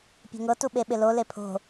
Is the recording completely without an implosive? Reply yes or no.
no